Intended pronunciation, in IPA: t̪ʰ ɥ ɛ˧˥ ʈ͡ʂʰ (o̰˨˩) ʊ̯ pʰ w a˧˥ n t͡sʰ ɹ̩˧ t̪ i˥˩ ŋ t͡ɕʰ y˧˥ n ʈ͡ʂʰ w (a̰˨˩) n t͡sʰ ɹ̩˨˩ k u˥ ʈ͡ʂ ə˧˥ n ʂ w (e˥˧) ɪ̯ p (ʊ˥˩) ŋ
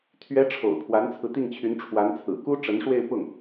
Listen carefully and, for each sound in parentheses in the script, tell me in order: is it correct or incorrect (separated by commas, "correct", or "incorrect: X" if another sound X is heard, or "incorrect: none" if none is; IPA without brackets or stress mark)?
correct, incorrect: a˧˥, correct, correct